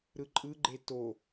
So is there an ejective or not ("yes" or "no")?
yes